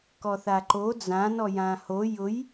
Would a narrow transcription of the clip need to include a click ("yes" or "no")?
yes